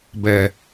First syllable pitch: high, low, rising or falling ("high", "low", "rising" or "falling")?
low